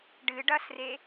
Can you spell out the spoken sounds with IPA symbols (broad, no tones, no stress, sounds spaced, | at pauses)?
ɖ ɨ ɖ ɐ s r e